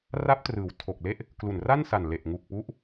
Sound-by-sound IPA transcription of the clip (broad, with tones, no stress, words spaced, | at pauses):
ra˦˥p̚trɯː˩˦w tʰo˨˩k̚le˥˩ʔ | klu˨˩nra˥˩nsa˨˩n le˨˩ʔŋu˨˩k̚pu˦˥ʔ